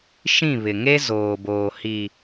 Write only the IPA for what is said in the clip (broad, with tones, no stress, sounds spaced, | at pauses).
ʃ ĩ˦˨ β ɪ˨ ŋ e˦ z oː˨ b oː˨ h i˨